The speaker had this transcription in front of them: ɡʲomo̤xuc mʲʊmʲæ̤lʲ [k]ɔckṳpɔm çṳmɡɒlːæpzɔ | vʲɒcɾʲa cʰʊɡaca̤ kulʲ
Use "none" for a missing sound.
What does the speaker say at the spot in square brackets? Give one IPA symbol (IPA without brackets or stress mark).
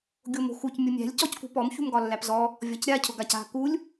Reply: c